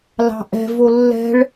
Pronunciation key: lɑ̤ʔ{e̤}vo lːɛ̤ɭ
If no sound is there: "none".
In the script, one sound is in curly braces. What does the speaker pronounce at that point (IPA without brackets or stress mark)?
ɛ̤